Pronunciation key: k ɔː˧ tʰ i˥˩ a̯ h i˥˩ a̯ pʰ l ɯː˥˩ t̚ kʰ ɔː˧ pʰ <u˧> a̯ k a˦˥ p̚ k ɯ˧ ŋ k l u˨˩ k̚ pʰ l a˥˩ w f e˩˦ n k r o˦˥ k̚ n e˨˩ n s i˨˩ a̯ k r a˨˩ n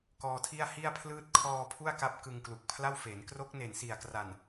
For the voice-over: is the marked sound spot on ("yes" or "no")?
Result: no